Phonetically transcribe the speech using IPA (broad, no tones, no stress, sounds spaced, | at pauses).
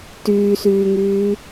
t yː s yː ŋ yː